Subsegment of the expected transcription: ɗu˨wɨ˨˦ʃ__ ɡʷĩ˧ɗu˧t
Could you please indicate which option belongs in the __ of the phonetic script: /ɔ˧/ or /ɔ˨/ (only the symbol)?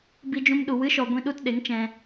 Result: ɔ˨